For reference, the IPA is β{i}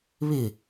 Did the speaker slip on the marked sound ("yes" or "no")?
yes